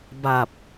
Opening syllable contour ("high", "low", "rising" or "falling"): low